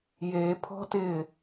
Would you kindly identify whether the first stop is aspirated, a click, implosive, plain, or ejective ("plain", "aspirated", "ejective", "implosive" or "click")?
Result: aspirated